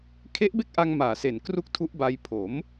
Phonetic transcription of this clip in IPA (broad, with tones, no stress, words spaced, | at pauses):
kʰe˦˥ʔbe˥˩k̚ʔa˧ŋ maː˨˩se˨˩n kru˥˩k̚tʰu˦˥ʔba˧j pʰo˩˦m